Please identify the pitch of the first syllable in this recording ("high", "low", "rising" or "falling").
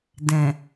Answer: low